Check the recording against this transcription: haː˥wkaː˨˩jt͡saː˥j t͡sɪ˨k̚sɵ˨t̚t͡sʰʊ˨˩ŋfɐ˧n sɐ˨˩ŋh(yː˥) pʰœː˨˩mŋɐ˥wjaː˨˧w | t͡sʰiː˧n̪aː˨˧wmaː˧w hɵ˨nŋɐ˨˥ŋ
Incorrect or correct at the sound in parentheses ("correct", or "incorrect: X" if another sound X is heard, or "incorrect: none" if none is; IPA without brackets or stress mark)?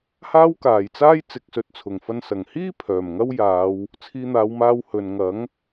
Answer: incorrect: iː˥